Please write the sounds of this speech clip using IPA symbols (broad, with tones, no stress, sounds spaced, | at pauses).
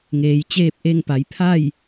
ŋ eː˩˧ j t͡ɕ eː˥˨ p̚ ʔ e˥˨ ŋ p a˩˧ j pʰ a˥˨ j